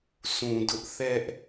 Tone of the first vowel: low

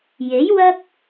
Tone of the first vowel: rising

